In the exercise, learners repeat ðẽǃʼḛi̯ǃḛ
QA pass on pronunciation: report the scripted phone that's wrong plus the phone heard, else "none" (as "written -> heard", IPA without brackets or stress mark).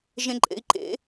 ð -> ʒ